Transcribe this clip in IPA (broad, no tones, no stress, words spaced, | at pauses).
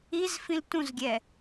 izfĩl tũzɡʲɛ